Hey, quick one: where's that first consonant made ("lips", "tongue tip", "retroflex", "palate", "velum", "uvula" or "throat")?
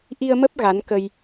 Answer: throat